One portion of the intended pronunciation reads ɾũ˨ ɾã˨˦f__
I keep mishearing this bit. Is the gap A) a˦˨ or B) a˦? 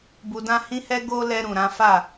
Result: A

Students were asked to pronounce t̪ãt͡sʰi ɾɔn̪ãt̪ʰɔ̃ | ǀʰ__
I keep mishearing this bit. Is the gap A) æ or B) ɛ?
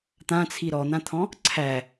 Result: A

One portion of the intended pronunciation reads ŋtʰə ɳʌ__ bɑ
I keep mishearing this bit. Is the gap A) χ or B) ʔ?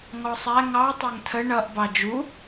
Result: B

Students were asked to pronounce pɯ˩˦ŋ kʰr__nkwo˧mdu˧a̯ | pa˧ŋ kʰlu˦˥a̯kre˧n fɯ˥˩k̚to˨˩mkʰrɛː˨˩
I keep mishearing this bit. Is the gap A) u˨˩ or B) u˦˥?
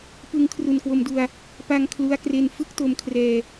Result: A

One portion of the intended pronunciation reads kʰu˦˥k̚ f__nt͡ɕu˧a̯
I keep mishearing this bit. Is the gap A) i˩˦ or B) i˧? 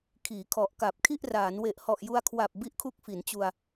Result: A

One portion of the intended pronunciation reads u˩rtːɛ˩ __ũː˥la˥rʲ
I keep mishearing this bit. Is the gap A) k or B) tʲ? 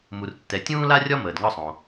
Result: B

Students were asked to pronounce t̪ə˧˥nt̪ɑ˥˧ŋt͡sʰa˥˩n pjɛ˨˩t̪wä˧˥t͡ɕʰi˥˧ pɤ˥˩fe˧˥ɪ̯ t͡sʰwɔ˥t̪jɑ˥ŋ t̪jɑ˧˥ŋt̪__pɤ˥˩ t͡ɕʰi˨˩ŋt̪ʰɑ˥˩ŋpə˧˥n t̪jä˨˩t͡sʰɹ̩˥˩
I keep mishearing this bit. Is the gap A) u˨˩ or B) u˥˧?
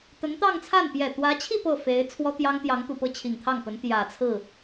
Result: A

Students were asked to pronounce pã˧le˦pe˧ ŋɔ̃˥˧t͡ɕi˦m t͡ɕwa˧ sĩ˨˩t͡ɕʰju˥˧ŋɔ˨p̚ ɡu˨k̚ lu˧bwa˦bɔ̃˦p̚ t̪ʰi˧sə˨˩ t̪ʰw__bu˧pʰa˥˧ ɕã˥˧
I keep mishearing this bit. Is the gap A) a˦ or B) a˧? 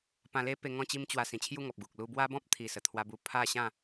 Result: B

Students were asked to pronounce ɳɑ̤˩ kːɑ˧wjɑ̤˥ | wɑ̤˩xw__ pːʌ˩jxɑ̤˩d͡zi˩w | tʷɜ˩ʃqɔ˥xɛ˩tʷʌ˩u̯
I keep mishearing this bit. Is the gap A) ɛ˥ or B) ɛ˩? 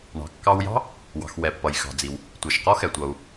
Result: B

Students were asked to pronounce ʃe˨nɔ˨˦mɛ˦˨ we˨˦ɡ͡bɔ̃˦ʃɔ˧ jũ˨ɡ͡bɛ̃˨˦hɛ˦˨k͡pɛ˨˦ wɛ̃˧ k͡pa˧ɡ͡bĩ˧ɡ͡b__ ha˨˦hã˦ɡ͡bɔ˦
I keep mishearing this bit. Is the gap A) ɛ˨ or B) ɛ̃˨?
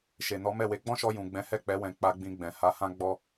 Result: B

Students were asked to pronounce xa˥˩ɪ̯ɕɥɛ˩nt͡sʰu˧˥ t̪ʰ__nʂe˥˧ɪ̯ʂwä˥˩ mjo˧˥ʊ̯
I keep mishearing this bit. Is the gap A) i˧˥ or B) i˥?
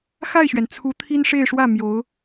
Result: B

